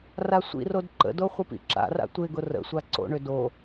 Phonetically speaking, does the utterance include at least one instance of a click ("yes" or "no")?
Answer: yes